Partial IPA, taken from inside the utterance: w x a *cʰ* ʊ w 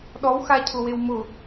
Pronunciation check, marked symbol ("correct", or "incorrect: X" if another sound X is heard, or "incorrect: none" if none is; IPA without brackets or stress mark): correct